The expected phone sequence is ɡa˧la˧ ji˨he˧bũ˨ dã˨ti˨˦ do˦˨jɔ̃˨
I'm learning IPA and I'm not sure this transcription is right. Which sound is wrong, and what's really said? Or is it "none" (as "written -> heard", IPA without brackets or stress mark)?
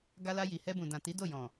e˧ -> ɛ˧